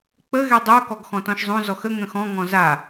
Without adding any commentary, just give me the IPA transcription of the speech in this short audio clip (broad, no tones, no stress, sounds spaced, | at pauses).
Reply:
k͡p ə ɣ ɛ dˤ o k ɔ ɡ x ɔ̃ t ɔ̃ ʃ zˤ õ z ɔ x ə ŋ ə̃ x ɔ̃ ŋ ɔ̃ z a